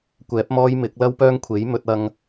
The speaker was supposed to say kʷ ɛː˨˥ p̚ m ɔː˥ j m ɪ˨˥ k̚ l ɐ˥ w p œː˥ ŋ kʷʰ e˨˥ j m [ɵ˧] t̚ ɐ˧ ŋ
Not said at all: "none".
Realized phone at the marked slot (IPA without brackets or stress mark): ɵ˧